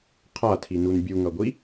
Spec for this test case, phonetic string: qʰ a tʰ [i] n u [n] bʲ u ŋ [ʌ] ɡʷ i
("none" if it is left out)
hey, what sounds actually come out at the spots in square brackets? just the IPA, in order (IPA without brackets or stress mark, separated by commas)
i, n, ʌ